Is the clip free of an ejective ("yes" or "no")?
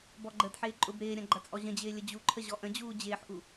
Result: no